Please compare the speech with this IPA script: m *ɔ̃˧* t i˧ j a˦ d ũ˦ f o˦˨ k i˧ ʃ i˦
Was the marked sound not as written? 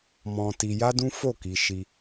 no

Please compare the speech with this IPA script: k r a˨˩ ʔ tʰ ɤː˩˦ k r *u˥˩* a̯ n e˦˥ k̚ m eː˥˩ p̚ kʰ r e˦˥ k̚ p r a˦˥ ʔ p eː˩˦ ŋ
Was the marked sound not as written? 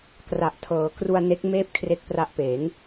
yes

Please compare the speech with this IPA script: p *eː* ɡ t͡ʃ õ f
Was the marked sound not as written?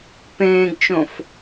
yes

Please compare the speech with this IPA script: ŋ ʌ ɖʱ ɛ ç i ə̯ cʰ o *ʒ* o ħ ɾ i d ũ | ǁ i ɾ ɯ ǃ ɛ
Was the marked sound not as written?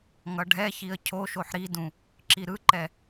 yes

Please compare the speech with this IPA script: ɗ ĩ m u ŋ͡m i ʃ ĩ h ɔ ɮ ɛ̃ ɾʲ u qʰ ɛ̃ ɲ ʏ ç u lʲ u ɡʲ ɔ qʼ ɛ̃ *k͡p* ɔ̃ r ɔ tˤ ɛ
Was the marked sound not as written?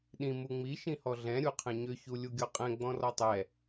yes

